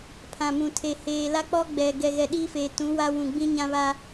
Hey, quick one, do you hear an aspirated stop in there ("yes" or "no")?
yes